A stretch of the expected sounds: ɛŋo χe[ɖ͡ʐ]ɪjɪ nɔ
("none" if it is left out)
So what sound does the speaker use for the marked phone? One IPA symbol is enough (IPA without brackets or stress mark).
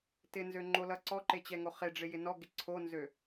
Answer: ɖ͡ʐ